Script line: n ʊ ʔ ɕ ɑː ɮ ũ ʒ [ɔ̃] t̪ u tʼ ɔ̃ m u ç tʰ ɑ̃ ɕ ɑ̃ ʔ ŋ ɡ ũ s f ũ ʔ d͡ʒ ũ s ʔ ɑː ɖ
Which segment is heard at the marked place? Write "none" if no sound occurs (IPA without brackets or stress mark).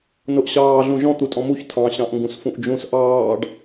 ɔ̃